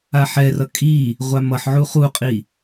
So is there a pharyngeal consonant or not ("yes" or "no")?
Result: yes